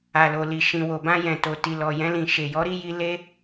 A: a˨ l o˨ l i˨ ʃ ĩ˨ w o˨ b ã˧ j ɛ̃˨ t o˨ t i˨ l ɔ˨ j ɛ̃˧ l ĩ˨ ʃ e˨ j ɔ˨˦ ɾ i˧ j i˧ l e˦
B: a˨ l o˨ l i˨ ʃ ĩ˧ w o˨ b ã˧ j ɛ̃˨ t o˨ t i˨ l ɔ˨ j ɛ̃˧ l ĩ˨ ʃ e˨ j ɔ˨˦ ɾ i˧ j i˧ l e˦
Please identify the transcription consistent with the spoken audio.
A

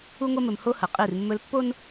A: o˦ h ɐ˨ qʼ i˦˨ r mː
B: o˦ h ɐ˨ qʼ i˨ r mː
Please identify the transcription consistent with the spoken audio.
A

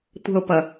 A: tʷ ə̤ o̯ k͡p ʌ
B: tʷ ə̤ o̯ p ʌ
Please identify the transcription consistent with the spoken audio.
B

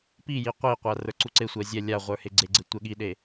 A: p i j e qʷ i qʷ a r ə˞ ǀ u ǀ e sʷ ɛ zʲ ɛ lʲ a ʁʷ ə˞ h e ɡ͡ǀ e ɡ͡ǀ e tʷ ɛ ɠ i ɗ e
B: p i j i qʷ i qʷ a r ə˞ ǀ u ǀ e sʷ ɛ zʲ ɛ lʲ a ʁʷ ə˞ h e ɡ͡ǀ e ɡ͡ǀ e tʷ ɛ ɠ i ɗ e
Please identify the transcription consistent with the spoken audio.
B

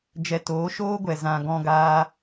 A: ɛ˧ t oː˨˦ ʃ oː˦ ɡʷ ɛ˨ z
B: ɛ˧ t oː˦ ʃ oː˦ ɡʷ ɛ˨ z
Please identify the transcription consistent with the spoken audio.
A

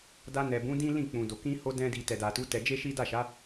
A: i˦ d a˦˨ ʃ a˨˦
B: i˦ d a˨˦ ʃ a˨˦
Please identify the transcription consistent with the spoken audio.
A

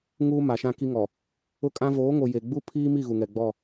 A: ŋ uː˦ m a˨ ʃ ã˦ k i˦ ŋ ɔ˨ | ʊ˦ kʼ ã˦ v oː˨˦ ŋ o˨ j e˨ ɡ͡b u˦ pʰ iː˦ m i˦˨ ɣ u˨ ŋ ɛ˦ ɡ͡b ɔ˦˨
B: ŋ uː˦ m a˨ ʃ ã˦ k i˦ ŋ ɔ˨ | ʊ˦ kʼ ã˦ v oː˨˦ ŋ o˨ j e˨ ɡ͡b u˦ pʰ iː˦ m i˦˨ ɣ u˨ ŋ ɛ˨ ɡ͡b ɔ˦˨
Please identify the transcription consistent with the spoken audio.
B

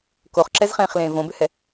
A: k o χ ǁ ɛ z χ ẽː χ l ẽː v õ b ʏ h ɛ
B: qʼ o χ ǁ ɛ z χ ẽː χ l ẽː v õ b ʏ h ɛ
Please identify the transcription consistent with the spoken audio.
A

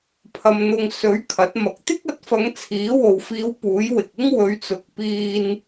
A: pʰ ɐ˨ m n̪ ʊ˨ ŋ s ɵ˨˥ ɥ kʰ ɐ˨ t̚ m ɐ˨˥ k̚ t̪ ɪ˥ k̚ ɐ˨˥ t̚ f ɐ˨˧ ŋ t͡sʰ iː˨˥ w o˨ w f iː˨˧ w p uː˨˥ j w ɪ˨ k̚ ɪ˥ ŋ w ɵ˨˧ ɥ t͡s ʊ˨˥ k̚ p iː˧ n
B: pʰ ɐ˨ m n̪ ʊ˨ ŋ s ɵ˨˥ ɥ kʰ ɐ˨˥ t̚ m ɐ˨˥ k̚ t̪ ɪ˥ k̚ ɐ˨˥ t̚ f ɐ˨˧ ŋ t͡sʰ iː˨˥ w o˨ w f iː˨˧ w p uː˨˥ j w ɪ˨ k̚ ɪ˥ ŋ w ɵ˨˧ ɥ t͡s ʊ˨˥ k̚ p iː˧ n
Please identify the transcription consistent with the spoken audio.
B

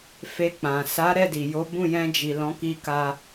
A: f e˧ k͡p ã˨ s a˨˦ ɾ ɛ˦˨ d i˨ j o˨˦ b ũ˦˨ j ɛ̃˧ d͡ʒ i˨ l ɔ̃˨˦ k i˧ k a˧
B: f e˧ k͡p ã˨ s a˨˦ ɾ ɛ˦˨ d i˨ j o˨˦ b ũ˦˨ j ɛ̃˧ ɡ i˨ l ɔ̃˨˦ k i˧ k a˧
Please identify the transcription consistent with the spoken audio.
A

